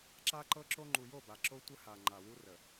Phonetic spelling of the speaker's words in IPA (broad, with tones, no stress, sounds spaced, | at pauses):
ǁ a˦ ǃ ɤ˦ ǁ o˦ ŋ͡ǃ u˨ j o˦˨ b a˨ ǁ o˦ tʷ ə˦ h a˨ ŋ͡ǃ a˨ w u˦ r ə˨